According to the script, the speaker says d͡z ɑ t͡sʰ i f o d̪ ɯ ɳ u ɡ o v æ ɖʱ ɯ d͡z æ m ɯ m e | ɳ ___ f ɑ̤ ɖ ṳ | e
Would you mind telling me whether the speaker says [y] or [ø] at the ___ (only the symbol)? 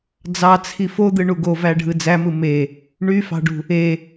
y